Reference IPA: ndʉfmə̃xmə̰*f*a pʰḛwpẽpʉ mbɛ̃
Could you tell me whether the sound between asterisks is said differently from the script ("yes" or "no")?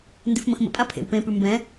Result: yes